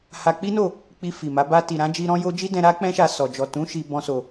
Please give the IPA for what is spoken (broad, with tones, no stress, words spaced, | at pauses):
ha˧k͡pi˦no˦˨ | k͡pi˧fi˨ma˨˦ ba˧ ti˨ɾã˨˦d͡ʒi˧ ɾɔ̃˦jo˦ d͡ʒi˦dɛ̃˧ ɾa˦ k͡pɛ̃˦ʃa˧sɔ˨ d͡ʒɔ˨tũ˨˦ ʃi˧ bɔ̃˦so˧